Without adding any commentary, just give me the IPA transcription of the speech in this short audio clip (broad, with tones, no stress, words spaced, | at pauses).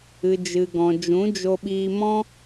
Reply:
ɨ˨d͡ʒɨ˨ɡɔ̃˨ d͡ʒũ˨˦d͡ʒo˧ɓiː˧mɔ̃˦